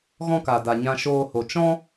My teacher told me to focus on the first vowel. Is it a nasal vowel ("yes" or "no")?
yes